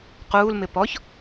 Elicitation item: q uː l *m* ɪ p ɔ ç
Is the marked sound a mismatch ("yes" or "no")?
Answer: no